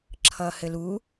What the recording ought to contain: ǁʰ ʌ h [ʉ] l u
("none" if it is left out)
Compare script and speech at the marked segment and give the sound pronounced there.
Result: ɘ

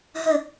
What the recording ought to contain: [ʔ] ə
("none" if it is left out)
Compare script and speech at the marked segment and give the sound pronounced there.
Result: ɦ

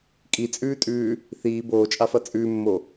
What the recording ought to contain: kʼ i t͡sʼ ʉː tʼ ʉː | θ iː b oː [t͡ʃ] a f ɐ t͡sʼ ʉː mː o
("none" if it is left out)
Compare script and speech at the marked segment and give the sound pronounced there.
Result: t͡ʃʼ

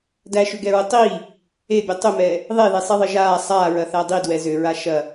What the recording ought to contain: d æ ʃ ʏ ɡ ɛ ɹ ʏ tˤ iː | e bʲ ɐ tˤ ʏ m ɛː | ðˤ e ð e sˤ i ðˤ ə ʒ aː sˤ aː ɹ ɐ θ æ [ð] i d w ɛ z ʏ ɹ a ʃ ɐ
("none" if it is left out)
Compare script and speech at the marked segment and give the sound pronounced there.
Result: dˤ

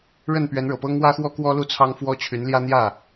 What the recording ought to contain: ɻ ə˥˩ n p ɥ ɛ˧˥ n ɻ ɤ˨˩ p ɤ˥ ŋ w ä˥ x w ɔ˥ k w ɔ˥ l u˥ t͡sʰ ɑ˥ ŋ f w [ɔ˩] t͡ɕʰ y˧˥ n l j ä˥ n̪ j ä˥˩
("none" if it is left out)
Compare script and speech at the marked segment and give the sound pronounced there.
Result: ɔ˥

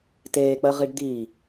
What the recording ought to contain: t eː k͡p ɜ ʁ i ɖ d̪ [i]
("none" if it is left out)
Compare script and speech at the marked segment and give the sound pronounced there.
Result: i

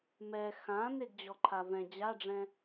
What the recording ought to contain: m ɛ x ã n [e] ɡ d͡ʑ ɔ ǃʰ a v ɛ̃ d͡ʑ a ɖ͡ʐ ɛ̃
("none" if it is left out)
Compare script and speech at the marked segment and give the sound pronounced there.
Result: e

